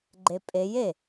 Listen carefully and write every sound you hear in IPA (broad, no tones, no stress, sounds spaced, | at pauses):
ɡ͡ǃ e pʼ e j e